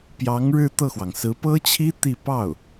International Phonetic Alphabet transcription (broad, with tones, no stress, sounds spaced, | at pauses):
p j ɑ˧˥ ŋ ɻ ɻ̩˥˧ t̪ ɤ˥˩ x w ɑ˩ ŋ s ɹ̩˧˥ p ɤ˥ t͡ɕʰ i˥ t̪ i˥˧ p ɑ˥˩ ʊ̯